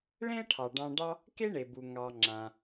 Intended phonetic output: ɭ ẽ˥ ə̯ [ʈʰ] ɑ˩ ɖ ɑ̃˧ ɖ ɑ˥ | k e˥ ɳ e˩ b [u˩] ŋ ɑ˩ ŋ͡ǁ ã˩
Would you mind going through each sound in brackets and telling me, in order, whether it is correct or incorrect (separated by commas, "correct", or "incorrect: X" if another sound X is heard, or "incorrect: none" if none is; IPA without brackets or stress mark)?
correct, correct